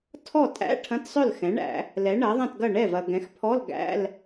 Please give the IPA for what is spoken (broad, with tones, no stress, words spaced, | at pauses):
tʰɔ˥˩ tʼæ̰˧˥˧ ʈʰɐ̃˧˥˧tsˤœ˥˩lxɛ̃˩˥ɳæ̰˨˩˦ | lɛ˩˥ɳɐ˩˥ðˤɐ̃˥˩tɡɐ˥˩ ɳɛ˥˩vɐ˨ ɡɛ̃˩˥xpʰɔ˧˥˧l ɡæ̰˧˥˧l